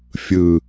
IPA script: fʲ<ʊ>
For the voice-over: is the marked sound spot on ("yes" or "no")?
no